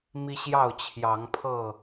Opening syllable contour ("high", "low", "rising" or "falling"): high